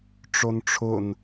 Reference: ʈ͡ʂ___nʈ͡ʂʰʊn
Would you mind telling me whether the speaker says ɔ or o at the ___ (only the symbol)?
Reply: o